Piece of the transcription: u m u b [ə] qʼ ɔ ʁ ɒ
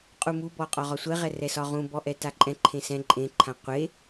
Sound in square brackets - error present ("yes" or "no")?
yes